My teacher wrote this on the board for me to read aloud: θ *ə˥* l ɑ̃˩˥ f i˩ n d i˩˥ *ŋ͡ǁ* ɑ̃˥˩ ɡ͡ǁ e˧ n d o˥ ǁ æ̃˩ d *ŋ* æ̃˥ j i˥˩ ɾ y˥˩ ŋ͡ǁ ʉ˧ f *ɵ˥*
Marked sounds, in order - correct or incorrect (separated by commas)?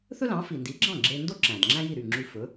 incorrect, incorrect, incorrect, incorrect